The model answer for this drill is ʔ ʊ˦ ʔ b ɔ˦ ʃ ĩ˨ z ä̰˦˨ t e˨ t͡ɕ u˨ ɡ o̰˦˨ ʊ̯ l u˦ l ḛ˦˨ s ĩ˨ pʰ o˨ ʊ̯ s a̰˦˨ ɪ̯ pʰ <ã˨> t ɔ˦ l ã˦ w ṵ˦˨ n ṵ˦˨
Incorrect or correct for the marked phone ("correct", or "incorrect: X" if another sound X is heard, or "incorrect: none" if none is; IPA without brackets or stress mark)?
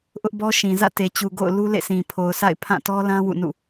incorrect: ã˦˨